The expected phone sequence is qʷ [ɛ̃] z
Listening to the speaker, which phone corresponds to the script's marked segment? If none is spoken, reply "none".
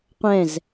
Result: ɛ̃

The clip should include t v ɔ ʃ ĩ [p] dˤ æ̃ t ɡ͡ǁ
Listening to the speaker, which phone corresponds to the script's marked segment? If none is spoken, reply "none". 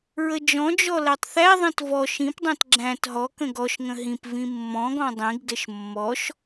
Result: p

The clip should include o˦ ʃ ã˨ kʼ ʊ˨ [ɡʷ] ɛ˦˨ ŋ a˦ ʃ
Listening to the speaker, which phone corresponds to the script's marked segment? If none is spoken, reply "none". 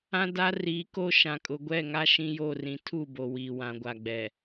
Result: ɡʷ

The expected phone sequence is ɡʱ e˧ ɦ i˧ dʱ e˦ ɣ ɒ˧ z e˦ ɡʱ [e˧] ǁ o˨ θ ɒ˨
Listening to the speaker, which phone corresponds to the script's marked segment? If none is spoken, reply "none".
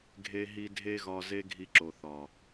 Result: i˧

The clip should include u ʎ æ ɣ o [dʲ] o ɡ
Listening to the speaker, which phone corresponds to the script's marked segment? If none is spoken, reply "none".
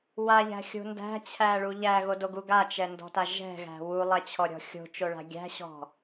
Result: d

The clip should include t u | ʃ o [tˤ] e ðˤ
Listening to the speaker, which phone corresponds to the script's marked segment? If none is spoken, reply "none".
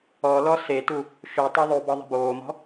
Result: tˤ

